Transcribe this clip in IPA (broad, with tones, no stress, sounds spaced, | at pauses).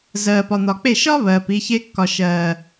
z ɜː˨ p ɒ˨ n̪ ɒ˨ k͡p e˦˨ ʃ ɒ˦ β ɜː˨ p i˧ ç e˦ kː ɒ˨ ʃ ɜː˨